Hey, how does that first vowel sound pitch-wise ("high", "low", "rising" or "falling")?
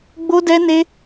high